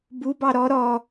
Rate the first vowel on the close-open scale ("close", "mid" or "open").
close